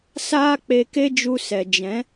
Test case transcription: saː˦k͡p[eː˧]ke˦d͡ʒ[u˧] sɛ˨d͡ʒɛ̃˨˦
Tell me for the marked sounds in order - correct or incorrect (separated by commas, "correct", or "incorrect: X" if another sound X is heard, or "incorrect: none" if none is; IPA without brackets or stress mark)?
incorrect: e˧, correct